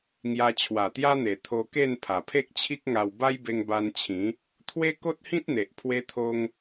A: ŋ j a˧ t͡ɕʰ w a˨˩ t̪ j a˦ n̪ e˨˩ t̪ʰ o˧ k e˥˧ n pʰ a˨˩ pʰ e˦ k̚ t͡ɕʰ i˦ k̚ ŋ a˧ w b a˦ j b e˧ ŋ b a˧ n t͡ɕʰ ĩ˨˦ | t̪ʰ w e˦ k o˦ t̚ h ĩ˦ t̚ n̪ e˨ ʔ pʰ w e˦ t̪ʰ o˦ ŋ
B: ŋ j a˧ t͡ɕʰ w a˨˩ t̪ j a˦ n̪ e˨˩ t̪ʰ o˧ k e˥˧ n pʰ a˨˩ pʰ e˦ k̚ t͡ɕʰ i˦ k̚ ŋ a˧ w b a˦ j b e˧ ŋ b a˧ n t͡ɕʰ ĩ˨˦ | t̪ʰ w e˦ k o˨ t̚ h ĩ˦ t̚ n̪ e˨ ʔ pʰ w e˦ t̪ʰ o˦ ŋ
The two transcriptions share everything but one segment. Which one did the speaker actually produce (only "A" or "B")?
A